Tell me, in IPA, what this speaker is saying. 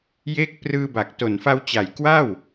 j e˦˥ k̚ p r ɯː˧ b a˨˩ k̚ t o˨˩ n f a˧ w t͡ɕ a˨˩ j k w a˥˩ w

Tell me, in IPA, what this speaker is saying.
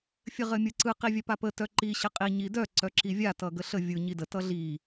fʲ ɘ ʁ ɘ mʲ ɯ ǀ ɯ q i vʲ œ p a p ə t œ ǃ i ɕ ɘ qʼ i ɲ i d œ ǀ œ ǁ i vʲ a t ʌ ɡ ə ɬ ə vʲ ɯ ɲ i d ə t ʌ ɮ i

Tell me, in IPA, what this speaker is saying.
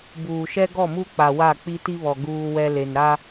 b uː˨ ʃ ɛ˦ ɡ ɔ˦˨ m u˦ k͡p a˨ w a˦˨ k͡p i˦ t i˦ β ɔ˨ ɡ uː˦ w ɛ˦ l e˨ n ɾ a˦

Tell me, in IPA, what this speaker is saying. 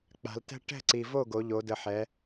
k͡p a̤˩˧ l t ɛ̤˥ ʈ ɛ̤˥˩ ǀ i˨˩ v o˥˩ ɡ o˩˧ ʎ o˩˧ d ə˨˩ ħ ɛ˩˧

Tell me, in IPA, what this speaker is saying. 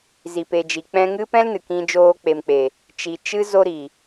z i˨ p e˨ d͡ʒ i˨ k͡p ɛ̃˧ ŋ ɨ˦ p ɛ̃˦ l n ɨ˨ k ĩ˧ d͡ʒ oː˧ k͡p e˨ m k͡p e˨ | t͡ʃ i˨ t͡ʃ ɨ˦ z o˧ ɾ i˨

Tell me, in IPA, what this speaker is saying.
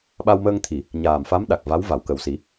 ɓ a˧ w m əː˧ ŋ t̪ʰ i˨˩˨ | ɲ aː˨˩ m f a˧˥ m ɗ a˨˩ k̚ v a˧˥ w v a˨˩˨ w k ə˨˩ w s i˨˩˦

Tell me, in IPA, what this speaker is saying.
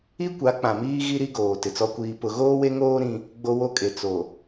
i˦ kʷ a˨˦ k͡p ã˨ m iː˦ ɣ i˦ ɾ i˦ ɡ oː˨ t ɪ˨ t͡s ɔ˦ kʷ iː˦ p ʊ˦ ɣ oː˦ w e˦ ŋ oː˦ ɾ ĩ˦ | ɡ͡b o˦ w o˦ kʼ e˨ t͡s o˨

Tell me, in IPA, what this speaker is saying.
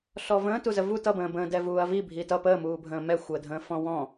ɬ ɔ v ə̃ː t u z ə v u t ʌ b ə̃ː b ə̃ː d ɛ v uː ɐ̯ v i bʱ i t ʌ p əː m uː bʱ ə̃ː m ɛ xʷ əː dʱ ə̃ː f ɔ̃ w ɔ̃

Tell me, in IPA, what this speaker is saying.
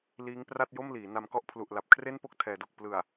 l iː˦˥ ŋ p r a˥˩ t̚ j o˥˩ m l iː˩˦ n a˧ m k ɔ˦˥ ʔ pʰ l u˨˩ ʔ l a˨˩ p̚ kʰ r e˥˩ n p o˥˩ k̚ tʰ ɛː˩˦ d o˨˩ k̚ p l ɯ˨˩ a̯

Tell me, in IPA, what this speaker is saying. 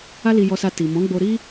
a˦ l i˧ j ɔ˧ s a˧ t i˨ m ɔ̃˨˦ ɡ͡b o˧ ɾ i˦

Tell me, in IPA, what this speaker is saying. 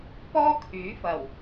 p ɔː˥ kʰ yː˨˥ f ɐ˨˩ w

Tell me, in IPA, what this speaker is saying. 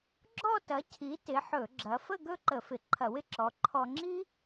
ɡ͡ǁ ɔ˥˧ t ɐ˨˥ cʰ i˨˥ t ɪ˨˥ ħ ɵ˧˩˧ ɡ͡ǁ ɐ˨˥ f ə˥˧ ɡ ɵ˥˧ ǃ ə˧˩˧ f ɪ˨˥ ǃʰ ɐ˧˩˧ w ɪ˥ ǁ ɔ˨˥ ǃʰ ɔ˧ ŋ͡ǁ i˥

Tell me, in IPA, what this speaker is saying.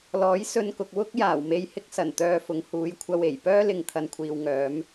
l ɔː˨˥ j s ɵ˧ n k ʊ˨ k̚ w ʊ˥ k̚ j aː˨˩ w m e˧ j h ɪ˥ k̚ s ɐ˨˩ n t̪ œː˧ f ʊ˨˧ ŋ h uː˨˧ j kʷʰ ɐ˧ w e˨˩ j p œː˥ l ɪ˨ ŋ t̪ʰ ɐ˨ n kʷʰ iː˨ w ŋ œː˨˧ m

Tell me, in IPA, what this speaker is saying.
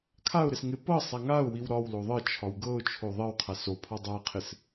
kʰ a ʊ̯ ɾ ɪ s ŋ ɪ p ɤ sˤ a ŋ a ʊ̯ w i w ɾ ɒ w l o ðˤ ɤ t͡ʃʰ ɒ w ɡ ɤ ʊ̯ t͡ʃʰ o ðˤ ɜ w qʰ a s o pʰ ɒ dˤ a qʰ ɪ s

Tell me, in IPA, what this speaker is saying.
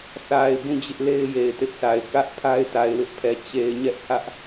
θ a˨ ɪ̯ b ũ˦˨ d͡ʑ ɪ˦ ʔ l e˦ ɪ̯ j e˨ ɪ̯ t ɪ˦ ʔ sʰ a˨ ɪ̯ k ä˦ ʔ pʰ a˦ ɪ̯ t a˨ ɪ̯ w ɪ˦ ʔ pʰ ɛ˨ t͡ɕ e˨ ɪ̯ ɲ ɛ˦ ʔ h ä˦ ʔ

